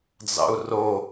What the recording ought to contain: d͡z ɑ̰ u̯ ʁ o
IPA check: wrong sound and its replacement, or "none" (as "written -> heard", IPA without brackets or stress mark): ʁ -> r